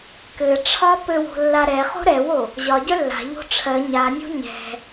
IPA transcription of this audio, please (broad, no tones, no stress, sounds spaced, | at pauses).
k ɘ ʈ͡ʂʰ ɒ p ɘ w o̤ lː a ɾ ɛ χ o̤ ɾ ɛ w o | ʑ ɒ ɟ œ lː a̤ ʎ o̤ ʈ͡ʂʰ ɜ ɲ a nʲ o̤ ɲ ɛ̤